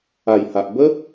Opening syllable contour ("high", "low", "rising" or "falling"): low